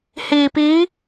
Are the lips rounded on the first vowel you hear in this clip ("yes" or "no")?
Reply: no